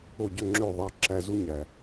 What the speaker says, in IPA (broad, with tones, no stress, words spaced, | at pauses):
o˥˩ɟø˥˩ŋ͡ǁø˥˩ ðˤɑ˧ǁæ˧ zu˥ɲæ˩